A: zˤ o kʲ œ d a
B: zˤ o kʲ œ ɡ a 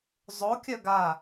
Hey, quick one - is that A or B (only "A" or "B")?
B